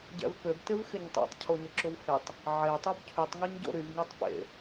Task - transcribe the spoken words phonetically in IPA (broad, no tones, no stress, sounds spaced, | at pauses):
ɟ ɛ̰ v p ø b t ɪ v x ɪ ɲ tˤ ḛ tˤ cʰ o ɲ ʊ ǁ ʊ v h e tˤ | ʕ e tˤ u b cʰ y tˤ ŋ ɛ ɲ ɟ o̰ ɾ y v ŋ e tˤ p ḛ